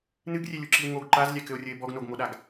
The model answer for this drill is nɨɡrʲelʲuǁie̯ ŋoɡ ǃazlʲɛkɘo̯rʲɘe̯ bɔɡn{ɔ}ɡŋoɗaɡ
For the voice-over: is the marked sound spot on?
no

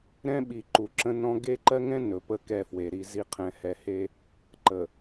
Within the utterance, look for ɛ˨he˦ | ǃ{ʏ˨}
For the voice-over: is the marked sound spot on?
no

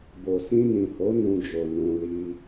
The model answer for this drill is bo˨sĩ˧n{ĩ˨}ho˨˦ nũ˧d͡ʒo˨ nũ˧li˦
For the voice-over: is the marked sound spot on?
yes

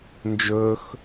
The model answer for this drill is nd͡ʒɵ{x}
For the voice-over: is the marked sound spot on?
yes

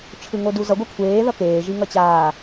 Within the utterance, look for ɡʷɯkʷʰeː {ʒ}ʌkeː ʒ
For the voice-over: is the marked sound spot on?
no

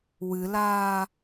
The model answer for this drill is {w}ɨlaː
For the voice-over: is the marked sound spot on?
yes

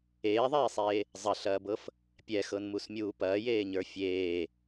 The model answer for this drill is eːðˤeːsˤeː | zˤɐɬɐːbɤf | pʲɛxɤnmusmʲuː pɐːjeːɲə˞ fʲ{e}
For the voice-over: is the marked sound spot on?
no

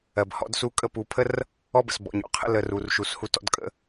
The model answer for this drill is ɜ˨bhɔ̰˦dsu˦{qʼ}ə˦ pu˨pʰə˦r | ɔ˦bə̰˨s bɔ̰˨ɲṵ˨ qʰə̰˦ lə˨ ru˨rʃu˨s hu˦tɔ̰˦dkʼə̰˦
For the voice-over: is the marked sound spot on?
no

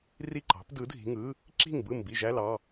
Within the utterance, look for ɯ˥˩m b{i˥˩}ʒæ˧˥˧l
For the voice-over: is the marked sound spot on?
yes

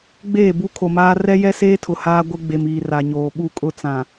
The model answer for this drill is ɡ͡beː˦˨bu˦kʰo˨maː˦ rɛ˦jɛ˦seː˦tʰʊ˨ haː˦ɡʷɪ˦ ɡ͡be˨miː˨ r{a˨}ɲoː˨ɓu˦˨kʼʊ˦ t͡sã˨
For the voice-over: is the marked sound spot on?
yes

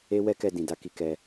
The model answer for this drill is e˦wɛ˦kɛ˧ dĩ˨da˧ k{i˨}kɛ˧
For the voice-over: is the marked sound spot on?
no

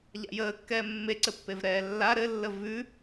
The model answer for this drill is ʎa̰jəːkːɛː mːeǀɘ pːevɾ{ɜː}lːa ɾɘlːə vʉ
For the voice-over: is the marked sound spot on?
no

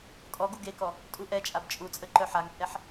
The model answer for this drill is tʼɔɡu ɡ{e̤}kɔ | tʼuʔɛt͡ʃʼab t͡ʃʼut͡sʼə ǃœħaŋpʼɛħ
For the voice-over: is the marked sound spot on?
no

